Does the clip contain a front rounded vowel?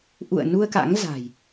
no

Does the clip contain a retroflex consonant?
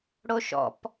yes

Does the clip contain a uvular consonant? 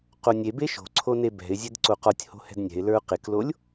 yes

